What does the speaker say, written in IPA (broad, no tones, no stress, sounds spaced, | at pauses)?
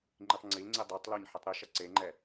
ŋ͡ǃ i tˤ ŋ͡ǀ i l ŋ͡ǀ i dˤ e tˤ l o ɲ ħ i tˤ ɾ i ʃ ɐ ǀ e ŋ͡ǃ ɛ